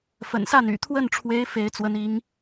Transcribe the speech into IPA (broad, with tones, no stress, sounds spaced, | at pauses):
f ə̰˨˩ n s a˥˩ n y̰˨˩ t̪ʰ w ə˥˩ n ʈ͡ʂʰ w e˧˥ ɪ̯ f e˥ ɪ̯ t͡s w ə˧˥ n i˧˥ ŋ